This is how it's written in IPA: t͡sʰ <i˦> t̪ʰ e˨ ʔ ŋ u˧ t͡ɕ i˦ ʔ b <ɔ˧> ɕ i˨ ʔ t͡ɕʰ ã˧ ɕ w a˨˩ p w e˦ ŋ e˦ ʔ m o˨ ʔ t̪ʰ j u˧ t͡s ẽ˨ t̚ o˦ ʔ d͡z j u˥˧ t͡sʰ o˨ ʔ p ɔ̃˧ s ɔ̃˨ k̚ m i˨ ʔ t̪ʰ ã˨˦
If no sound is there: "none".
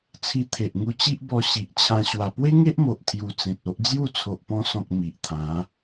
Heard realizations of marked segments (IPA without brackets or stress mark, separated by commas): i˧, ɔ˧